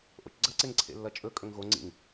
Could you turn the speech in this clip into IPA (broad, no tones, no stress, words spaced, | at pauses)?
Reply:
ʔo̰t͡ʃɡ͡ǀɐ ǀeŋǀʰḛlːɐt͡ʃʼɵ kʼɵŋɣo ŋ͡ǀḭŋ